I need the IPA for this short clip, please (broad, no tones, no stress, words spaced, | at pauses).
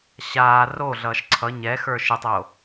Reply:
ɕaː roɮʌːʃ ǀʰʌ ɲɛxə˞ ʃɨtˤoː